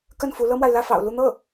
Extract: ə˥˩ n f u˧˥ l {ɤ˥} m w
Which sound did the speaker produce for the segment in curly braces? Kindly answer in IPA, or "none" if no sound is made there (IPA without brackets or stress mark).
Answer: ɤ˥